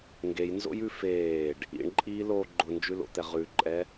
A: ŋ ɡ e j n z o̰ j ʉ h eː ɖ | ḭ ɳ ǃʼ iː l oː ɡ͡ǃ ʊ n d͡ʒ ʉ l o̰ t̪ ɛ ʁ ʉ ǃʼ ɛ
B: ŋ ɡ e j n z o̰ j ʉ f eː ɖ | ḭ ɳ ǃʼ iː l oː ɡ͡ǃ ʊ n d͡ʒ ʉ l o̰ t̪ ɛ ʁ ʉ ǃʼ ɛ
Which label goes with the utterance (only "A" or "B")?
B